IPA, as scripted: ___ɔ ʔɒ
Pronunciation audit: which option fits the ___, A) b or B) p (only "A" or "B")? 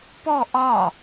B